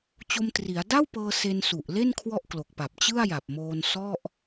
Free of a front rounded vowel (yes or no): yes